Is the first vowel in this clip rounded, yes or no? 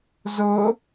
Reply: yes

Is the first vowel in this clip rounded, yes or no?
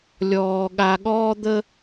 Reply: yes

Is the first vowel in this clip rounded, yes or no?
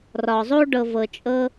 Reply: yes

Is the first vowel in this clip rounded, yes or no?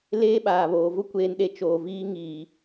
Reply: no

